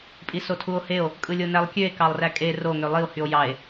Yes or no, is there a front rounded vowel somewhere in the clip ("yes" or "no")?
yes